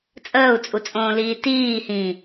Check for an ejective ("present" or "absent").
present